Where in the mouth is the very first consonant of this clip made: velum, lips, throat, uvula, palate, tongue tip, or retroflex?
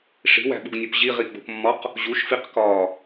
retroflex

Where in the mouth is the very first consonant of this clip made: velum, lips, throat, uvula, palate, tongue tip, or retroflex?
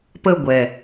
lips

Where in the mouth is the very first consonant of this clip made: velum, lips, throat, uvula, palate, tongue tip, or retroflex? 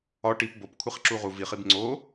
retroflex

